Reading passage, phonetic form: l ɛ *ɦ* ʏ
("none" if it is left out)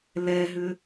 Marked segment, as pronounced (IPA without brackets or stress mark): ɦ